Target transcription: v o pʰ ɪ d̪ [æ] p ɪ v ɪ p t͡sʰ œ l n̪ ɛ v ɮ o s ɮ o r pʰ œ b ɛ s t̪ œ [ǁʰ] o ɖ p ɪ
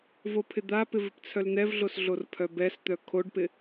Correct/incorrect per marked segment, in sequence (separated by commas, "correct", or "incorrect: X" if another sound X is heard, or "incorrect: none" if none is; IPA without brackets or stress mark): incorrect: a, incorrect: kʰ